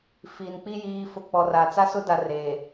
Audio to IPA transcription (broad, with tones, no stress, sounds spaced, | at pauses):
f iː˨ n k͡p i˦ j iː˨ f ʊ˨ k͡p ɔ˨ r a˨ t͡s a˦ s ʊ˦ d a˨ r eː˨